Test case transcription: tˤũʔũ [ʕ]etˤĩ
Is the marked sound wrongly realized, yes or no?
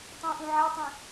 no